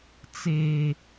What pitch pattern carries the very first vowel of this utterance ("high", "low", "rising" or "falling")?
high